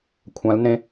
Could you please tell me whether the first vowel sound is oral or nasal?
nasal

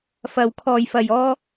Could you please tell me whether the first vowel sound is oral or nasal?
oral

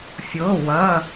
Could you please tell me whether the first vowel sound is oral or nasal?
oral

